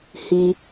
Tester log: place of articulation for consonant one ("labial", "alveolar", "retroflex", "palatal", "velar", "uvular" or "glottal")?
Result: glottal